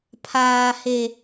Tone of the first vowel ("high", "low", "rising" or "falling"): high